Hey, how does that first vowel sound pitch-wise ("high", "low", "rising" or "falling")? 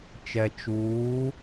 low